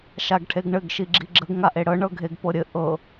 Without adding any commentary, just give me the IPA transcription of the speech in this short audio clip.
ʃ a ɡ ʈʰ e ɡ ɳ ɘ ɡ ʃ i ɡ͡ǁ i ɡ͡ǁ ə ɡ ŋ a ʔ e ɽ ɤ ɳ ɤ ɡʱ e ɡ p ɤ ɾʲ ɘ ʔ ɤ

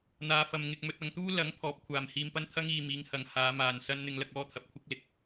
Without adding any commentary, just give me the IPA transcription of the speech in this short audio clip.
n̪ aː˧ f ɐ˧ m ŋ ɪ˧ k̚ m ɵ˧ t̚ ɐ˧ ŋ t̪ uː˥ l ɐ˨˥ ŋ pʰ ɔː˨˥ p̚ kʷʰ aː˨ m h iː˧ m p ɐ˥ n t̪ʰ ɐ˥ ŋ iː˨ m iː˨˧ ŋ h ɐ˨ ŋ h aː˨˧ m aː˨ n s ɐ˥ n n̪ ɪ˧ ŋ l ɐ˧ k̚ ɔː˥ t̪ʰ ɐ˨ p̚ kʷʰ ɪ˥ k̚ l ɪ˨˥ k̚

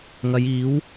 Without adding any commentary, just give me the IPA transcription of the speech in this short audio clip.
ŋ ɐ˨˧ j iː˨˥ w

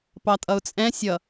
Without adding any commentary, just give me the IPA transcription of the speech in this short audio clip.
p ɑ tʼ ʌ ʊ̯ t͡sʼ ɛ̃ sʲ ʌ

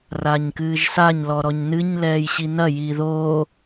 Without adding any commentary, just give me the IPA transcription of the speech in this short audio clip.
r aː ɲ k ɨː ʒ s a ɲ l ɔ ɾ ɔ ɲ n ɨ ɲ l ɛː j ɕ i n ɐ j iː ð oː

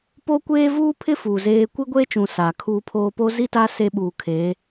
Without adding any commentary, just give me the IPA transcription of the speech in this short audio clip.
p oː˦ kʷ eː˦ v uː˦ pʰ ɪ˦ f uː˨ z eː˦ kʷ i˦ ɡʷ eː˦ t͡ʃ ũ˨ s aː˨ kʰ uː˦ pʰ oː˦ p o˦ z i˦ t aː˦ s e˦ ɓ uː˨ kʰ eː˨˦

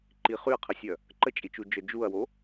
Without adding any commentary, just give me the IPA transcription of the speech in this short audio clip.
ǃ i χ y ɐ̯ qʰ ə sʲ œ | ǃ ə t͡ʃʼ i t͡ʃ u d͡ʒ œ d͡ʒ u ɐ̯ w o

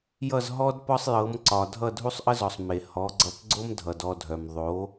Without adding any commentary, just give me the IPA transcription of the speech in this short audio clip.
j ʌ˥˩ z ɦ ɔ˥ d p ɒ˥ sˤ j ɤ˩˥ m ǀ ɒ˩ dʱ ʌ˥˩ dʱ u˥ sˤ ʔ ə˥ z ɔ˩ sˤ m e˩ h ɔ˩˥ ɡ͡ǀ ʌ˧ p ɡ͡ǀ o˥ m dʱ ʌ˩ d ɔ˥˩ dʱ œ˩ m ðˤ o˩˥

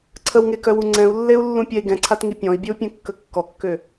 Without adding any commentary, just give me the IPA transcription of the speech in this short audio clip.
ǀʰ ə w ŋ e k œ w u ŋ͡ǀ ɛ̃ u̯ lː e u̯ lː ũ pʲ ɛ i̯ ɡ ɛ̃ ǀʰ a t ŋ i pʲ ɔ̃ i̯ bʲ ə u̯ pʲ ɛ̃ kː ə kː ɔ kː ø

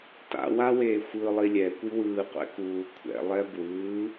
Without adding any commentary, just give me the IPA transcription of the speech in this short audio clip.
t a̰ w a w eː xʷ ɯ lˠ i lʲ ɛ kʷ i w ɯː qʷ ɛ̰ k uː kʷʰ ɛ̰ lˠ ɛ b w ɯː

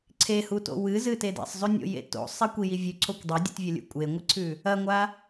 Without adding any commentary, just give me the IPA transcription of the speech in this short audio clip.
ǀʰ e h u t o̰ w ɨ z ɨ t e d ḛ sˤ zˤ ʉ nʲ o̰ j ḛ t o̰ sˤ e kʷ i j i vʲ ʉ ǀʰ o kʷ dˤ ɐ dʲ ṵ t vʲ ɐ lʲ ṵ kʷʼ e ŋʷ ɨ ǀʰ ʉ | ɐ ŋʷ a

